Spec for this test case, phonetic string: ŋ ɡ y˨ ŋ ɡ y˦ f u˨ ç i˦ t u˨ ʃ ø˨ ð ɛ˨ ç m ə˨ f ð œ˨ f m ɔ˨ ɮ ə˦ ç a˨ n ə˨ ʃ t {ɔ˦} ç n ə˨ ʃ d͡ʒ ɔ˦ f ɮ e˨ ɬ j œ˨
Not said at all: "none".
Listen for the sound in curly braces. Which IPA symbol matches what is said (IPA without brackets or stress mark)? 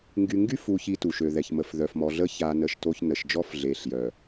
o˦